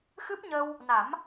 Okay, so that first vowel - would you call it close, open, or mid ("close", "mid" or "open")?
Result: close